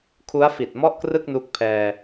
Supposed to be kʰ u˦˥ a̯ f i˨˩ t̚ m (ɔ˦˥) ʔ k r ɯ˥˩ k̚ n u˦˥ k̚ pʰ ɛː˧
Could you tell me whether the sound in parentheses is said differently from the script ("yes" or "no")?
yes